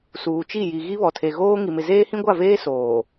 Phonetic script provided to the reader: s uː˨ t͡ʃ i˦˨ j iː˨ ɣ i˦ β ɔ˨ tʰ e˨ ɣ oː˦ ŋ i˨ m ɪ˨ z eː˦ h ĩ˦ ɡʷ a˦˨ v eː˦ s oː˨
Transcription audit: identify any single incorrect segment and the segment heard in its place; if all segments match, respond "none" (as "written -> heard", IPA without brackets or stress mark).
iː˨ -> i˨